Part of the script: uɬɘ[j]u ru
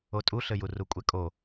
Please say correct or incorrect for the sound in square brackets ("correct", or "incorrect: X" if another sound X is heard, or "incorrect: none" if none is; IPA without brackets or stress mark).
correct